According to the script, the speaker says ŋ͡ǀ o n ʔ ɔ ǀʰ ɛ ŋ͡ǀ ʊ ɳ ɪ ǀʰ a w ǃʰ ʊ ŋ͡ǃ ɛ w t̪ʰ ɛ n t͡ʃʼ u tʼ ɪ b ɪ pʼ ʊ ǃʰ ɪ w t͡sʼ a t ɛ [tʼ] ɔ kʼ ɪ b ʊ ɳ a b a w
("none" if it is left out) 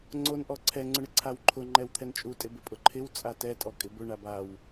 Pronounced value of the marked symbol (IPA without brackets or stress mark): tʼ